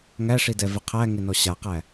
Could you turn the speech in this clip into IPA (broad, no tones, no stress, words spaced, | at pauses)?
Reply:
ŋæʂidɛvɪ qʰæŋɪnɔ ɕaqæ